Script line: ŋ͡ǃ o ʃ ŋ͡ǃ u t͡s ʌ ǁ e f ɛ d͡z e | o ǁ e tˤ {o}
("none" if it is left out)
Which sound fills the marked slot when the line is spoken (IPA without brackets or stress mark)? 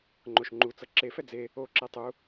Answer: u